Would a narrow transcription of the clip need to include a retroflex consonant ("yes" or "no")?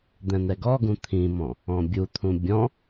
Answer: no